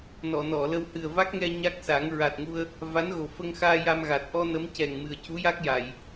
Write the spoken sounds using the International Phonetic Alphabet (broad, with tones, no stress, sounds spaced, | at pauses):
n ɔ˨˩˨ n ɔ˨˩˨ l ə˧ w h ɨ˨˩ ə̯ v a˦˥ k̚ ŋ ɛ˧ ɲ a˦˥ k̚ s a˨˩˦ ŋ ɹ a˨˩ t̚ ŋ u˧ ə̯ | v a˧˥ n ɣ o˨˩ f ə˧ ŋ x aː˧ j a˧ m ɣ a˨˩ t̚ ʔ ɔ˧ n ə˧˥ m c ɛ˨˩ ŋ m ɨ˨˩ ə̯ c u˧˥ j a˦˥ k̚ j a˨˩˨ j